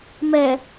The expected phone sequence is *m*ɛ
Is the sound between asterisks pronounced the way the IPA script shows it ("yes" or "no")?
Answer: yes